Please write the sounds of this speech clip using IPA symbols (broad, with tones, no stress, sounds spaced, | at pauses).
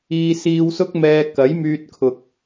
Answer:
iː˧ s iː˧ w s ʊ˥ k̚ m ɛː˧ k ɐ˨˥ j m yː˧ t̚ kʰ ʊ˨ k̚